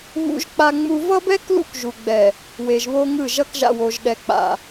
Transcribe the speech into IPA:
β ṵ˦ ʒ k͡p a˦ ŋ͡m u˦ v ʌ˦ b ɛ˦ k l ṵ˦ k ʒ u˨ ɡ͡b ɛ˨ | w e˨ ʒ β o˦ ŋ ɯ˦˨ ʒ ʌ˦ k ʒ a̰˨ w o˨ ʒ ɗ ɛ˨ k͡p a̰˨

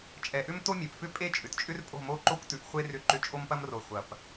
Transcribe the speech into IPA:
t͡ʃʼ ɛ˨ ʔ ʏ˦ m t o˦ mʲ ɛ˨ p f ʏ˦ pʼ e˦˨ t͡ʃʼ ʏ˨ t t͡ʃʼ ʏ˦ r pʼ o̤˦˨ m o˦˨ ǃ o˦ kʷ t ʉ˨ ʔ χʷ e˦ r ʏ˦˨ ǃ ʏ˦ t͡ʃʼ o˦ m p ɐ˦ m r o˨ χʷ ɐ˨ p

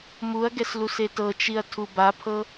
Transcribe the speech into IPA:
m u ɐ̯ ɡ ɛ s l u s e t ɤ t͡ʃ i ɐ̯ tʰ u b a pʰ ɤ

